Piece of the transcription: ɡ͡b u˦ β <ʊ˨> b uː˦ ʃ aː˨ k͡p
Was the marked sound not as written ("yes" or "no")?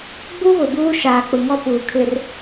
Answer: no